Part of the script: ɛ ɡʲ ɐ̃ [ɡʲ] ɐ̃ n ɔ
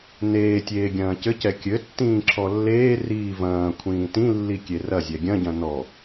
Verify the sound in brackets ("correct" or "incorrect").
incorrect